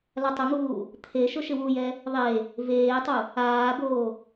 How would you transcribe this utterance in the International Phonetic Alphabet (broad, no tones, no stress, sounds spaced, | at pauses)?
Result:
l a tˤ ʊ ŋ uː | t̪ʰ e ʃ ʊ ʃ ɪ w u j ɛ | ðˤ e | v eː tˤ u | aː b oː